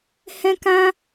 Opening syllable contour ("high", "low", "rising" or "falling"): high